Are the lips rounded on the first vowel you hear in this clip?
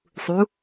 yes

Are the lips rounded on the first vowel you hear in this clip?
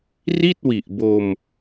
no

